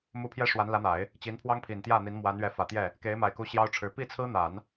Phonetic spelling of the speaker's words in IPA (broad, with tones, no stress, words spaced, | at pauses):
mu˧˥ pʰjɛ˥ʂwa˧˥n lä˧˥n̪a˨˩˦ɪ̯ | t͡ɕi˧˥npʰwɑ˥ŋ pʰi˨˩nt̪jä˥˩n̪i˧˥n mwa˧˥nɥɛ˧˥fä˨˩t̪jɛ˥˩ | ke˧˥ɪ̯ma˨˩ɪ̯ku˧˥ ɕjɑ˥ʊ̯ʈ͡ʂʰɻ̩˧˥ pi˥˩t͡sʰɹ̩˥n̪a˨˩˦n